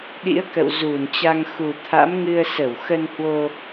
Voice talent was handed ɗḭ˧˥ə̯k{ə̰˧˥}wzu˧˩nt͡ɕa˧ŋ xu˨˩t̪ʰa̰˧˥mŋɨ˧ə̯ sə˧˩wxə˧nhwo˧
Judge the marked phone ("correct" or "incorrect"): incorrect